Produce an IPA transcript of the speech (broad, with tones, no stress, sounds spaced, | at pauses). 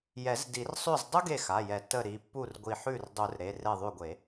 j ɛ˨˩˦ z d i˨˩˦ r sˤ ʉ˥˩ z dˤ u˥ ɡ e˥˩ x a˩˧˩ j ɛ˨˩˦ t ə˧˩ ɾ i˩˧˩ pː u˥˩ r ɡʷ i˧˩ ħ ʉ˥˩ r dˤ u˨˩˦ r ɾ e˩˧˩ r e˧˩ ðˤ ʉ˧˩ ɡʷ e˨˩˦